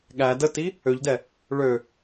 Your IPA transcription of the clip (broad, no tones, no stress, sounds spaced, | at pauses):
ɠ æ d ə t i | ø ʎ d ɛ | ɭ ø